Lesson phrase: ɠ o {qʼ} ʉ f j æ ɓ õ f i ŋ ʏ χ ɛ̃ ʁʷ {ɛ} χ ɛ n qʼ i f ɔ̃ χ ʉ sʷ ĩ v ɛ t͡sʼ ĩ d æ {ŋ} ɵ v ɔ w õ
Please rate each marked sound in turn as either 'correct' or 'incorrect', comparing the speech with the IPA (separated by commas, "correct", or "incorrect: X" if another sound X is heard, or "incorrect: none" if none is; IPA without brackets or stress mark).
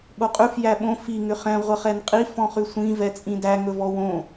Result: correct, incorrect: ə, correct